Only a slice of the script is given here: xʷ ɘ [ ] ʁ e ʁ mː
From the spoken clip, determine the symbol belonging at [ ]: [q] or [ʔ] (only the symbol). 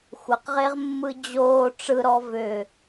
q